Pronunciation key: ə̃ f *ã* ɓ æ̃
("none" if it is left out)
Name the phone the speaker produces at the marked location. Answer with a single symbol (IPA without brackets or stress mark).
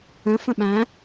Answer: ə̃